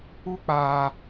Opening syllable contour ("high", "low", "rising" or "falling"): high